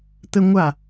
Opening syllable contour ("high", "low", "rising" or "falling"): high